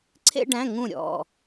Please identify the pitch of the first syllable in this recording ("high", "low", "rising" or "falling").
high